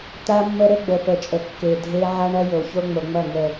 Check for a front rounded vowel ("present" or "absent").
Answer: absent